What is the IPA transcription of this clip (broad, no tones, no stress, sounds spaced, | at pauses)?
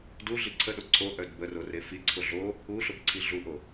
d u ɮ i ǀʰ ə ɗ o ǀʰ o ʔ œ d b ə r o r e f i ǀʰ ʊ ɮ o | u ɬ ʊ b ǀʰ i ɮ u ʔ o